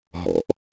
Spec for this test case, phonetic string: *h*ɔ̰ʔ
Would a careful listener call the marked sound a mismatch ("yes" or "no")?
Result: yes